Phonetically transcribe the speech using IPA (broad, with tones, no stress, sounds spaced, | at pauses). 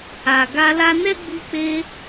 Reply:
a˨ ɡ a˧ l a˦ n ɛ˦ ɡ͡b i˧ k͡p e˧